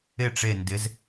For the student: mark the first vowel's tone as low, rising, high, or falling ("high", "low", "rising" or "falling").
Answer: falling